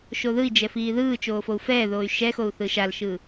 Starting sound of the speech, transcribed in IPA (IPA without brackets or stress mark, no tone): ʃ